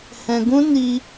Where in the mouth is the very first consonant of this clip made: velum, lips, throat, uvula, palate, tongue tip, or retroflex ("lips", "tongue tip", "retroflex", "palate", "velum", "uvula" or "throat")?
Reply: throat